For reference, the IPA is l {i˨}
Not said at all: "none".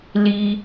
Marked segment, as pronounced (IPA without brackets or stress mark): i˦